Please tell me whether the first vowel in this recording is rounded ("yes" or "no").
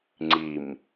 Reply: no